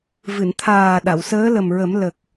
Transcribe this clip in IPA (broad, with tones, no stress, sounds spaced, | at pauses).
v ɨ˨˩˨ n t̪ʰ aː˨˩ ɗ a˨˩˨ w s əː˧˥ l ə˨˩ m ɹ ə˨˩˦ m l ə˨˩ k̚